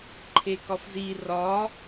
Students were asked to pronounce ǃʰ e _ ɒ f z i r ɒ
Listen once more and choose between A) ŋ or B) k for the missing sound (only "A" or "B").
B